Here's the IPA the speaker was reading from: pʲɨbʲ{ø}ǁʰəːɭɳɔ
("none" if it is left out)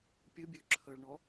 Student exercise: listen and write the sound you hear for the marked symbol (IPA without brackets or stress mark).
ø